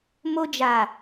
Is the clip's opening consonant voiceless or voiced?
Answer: voiced